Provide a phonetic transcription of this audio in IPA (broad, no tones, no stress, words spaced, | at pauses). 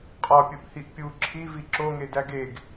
qʼɒpʲuʔ hiʔpʲu ǁʰivi ǁoŋedæ ɡeɡ